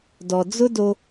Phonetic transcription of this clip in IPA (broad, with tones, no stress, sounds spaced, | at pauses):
d ɔ˨ d͡z ʊ˥ d o˥